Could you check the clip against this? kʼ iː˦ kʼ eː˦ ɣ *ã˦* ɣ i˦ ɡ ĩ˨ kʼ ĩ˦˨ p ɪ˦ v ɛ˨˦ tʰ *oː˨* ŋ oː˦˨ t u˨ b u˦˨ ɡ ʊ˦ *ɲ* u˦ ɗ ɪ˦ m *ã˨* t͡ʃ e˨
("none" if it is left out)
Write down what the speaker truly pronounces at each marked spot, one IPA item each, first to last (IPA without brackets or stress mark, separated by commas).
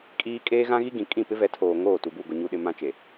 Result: ã˦, oː˨, ɲ, ã˦